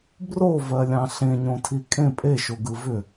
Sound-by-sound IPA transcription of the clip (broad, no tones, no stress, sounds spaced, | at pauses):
b r o v ɜ lʲ ɑ̃ ɬ ẽ ɲ õ tʰ i kʼ ẽ pʼ e ʃ o ɡ ɯ v ʏ